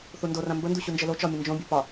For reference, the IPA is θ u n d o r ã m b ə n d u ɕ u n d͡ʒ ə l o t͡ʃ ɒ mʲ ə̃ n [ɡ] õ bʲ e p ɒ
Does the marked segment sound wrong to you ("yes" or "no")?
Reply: yes